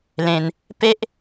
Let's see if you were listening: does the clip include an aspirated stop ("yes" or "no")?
no